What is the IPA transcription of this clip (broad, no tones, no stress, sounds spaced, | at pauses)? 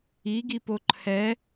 i ɡ i p o ǃʰ ɛ